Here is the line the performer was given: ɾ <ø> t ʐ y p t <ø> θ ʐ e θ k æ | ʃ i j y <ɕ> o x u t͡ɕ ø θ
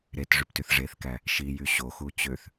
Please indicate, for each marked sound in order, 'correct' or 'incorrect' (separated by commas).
incorrect, incorrect, correct